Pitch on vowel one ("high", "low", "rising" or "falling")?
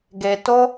low